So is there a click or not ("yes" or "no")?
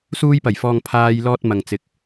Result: no